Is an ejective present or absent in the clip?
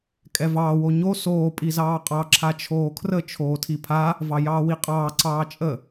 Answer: present